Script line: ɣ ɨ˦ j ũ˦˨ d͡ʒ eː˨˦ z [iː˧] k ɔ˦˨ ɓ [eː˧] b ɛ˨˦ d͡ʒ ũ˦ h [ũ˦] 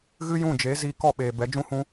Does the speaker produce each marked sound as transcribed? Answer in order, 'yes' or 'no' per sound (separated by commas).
yes, no, yes